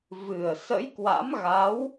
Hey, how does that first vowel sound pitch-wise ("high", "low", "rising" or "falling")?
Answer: low